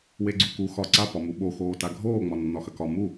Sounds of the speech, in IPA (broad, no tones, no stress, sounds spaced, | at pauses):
w e ɡ͡ǀ u k u x ɒ ǀ a p ɒ m u ɓ o x oː t a ɡʱ oː ŋ͡m ɒ nː ɒ x ɐ k ɒ m u